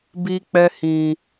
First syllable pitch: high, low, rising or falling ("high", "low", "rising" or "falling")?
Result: high